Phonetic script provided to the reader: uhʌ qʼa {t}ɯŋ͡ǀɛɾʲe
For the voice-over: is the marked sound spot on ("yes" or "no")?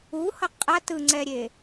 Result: yes